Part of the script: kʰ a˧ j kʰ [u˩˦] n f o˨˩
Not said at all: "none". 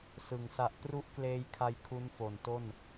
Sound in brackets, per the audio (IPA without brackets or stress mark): u˦˥